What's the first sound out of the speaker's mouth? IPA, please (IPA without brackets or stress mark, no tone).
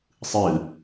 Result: sˤ